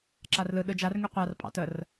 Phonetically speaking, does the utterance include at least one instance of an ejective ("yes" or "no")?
yes